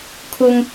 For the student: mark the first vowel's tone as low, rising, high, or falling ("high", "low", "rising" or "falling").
high